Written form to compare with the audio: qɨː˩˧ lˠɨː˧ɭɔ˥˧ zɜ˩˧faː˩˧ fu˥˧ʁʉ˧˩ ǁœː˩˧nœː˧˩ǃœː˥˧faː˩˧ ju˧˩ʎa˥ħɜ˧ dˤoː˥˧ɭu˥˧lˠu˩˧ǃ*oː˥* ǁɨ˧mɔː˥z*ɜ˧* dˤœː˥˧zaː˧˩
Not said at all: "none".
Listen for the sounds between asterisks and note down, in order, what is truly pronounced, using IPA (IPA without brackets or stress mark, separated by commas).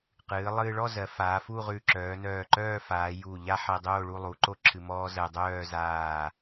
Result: o˥, ɜ˧